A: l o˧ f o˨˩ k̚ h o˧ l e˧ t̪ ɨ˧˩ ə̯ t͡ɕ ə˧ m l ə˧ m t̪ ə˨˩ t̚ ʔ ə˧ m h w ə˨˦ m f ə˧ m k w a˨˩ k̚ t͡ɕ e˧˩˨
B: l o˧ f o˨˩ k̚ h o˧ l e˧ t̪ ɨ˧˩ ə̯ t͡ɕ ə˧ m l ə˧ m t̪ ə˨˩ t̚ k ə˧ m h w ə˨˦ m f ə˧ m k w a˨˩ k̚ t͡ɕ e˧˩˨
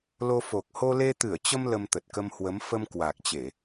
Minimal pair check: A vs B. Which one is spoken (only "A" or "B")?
B